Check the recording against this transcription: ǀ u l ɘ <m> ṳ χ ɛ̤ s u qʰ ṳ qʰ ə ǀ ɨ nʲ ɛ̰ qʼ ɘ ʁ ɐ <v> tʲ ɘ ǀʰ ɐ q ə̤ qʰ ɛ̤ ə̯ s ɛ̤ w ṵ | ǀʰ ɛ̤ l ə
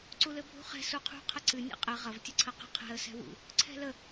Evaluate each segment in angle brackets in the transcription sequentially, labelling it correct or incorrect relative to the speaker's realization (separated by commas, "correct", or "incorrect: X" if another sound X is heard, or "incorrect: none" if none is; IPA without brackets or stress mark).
incorrect: bʱ, correct